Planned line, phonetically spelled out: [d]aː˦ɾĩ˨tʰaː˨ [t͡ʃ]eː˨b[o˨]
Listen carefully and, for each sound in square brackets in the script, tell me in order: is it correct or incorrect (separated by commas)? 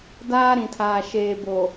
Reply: correct, incorrect, correct